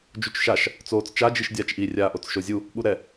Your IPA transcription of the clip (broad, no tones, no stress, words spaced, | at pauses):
d͡ʒut͡ʃʃaʃ | t͡soːt͡st͡ʃa d͡ʒiʃdʲaːt͡ʃʔi rʲaːʔot͡sʃozʲu | ɓuɾɛ